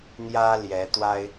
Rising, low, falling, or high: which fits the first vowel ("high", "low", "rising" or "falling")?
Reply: high